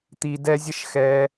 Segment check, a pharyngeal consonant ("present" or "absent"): absent